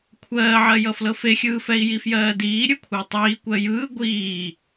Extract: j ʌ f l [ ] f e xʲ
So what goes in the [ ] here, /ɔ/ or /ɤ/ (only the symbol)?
ɤ